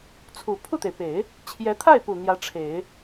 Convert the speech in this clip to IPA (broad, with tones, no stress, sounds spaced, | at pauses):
t͡sʰ u˨˩ pʰ u˥˩ t̪ e˩ ɪ̯ p e˨˩˦ ɪ̯ | t͡ɕʰ j ɛ˧˥ t̪ʰ a˥˩ ɪ̯ p u˨˩ n̪ j ä˧˥ ʈ͡ʂʰ e˨˩˦ ɪ̯